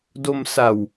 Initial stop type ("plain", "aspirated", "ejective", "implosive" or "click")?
plain